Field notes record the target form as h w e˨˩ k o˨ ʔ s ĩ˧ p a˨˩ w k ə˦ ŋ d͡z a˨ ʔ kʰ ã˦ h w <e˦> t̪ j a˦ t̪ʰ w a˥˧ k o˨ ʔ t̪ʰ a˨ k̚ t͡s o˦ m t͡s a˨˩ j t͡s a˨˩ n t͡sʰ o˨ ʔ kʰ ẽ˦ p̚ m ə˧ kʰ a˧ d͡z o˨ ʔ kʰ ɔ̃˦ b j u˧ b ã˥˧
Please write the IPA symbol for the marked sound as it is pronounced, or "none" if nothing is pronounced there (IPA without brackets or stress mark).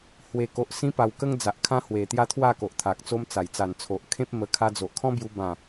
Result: e˨˩